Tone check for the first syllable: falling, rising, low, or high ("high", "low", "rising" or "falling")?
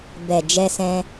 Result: low